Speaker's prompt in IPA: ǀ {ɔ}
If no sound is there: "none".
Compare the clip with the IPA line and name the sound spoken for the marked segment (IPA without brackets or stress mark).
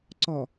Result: ɔ